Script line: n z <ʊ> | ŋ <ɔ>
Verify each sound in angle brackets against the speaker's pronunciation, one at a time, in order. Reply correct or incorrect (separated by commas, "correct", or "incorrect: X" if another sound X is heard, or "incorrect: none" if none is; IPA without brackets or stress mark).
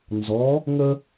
incorrect: ɔ, incorrect: ə